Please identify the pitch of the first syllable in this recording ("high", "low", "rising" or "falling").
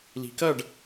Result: rising